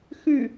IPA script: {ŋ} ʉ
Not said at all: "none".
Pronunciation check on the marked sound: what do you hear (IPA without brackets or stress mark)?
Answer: x